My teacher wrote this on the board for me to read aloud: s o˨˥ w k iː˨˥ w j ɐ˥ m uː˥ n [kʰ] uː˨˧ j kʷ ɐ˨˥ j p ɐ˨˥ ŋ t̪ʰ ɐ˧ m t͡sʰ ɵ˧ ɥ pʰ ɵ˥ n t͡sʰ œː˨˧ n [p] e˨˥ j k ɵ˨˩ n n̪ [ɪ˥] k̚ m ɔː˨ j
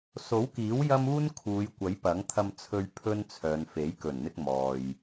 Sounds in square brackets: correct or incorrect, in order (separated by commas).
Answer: correct, incorrect, incorrect